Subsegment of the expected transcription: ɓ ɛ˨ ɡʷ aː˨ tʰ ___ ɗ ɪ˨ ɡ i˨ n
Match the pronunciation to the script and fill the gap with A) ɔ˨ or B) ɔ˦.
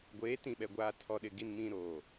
A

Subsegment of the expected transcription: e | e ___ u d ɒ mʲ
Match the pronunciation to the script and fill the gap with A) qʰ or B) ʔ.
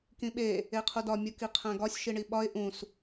A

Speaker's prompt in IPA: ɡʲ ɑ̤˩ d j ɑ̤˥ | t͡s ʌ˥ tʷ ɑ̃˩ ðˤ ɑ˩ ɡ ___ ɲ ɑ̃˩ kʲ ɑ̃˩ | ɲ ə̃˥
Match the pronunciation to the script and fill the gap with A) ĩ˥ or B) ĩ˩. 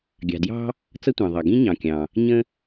A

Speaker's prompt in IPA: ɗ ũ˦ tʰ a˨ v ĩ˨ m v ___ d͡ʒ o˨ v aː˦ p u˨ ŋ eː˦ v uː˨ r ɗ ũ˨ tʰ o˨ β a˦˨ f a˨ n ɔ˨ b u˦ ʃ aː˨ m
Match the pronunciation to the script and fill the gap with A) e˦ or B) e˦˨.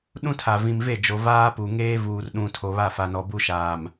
B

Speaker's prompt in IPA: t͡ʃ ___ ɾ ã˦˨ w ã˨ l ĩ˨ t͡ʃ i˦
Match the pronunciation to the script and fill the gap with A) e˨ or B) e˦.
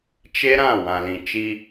B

